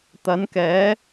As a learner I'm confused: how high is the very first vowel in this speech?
low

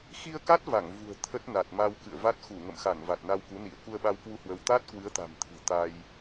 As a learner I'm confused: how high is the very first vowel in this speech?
high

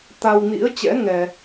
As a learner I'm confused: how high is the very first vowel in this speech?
low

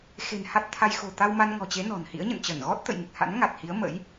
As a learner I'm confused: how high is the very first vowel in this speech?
mid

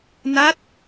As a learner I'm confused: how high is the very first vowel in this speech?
low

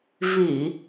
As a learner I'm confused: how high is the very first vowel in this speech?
high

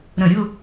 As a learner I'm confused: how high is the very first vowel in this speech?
mid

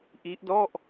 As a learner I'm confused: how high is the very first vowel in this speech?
high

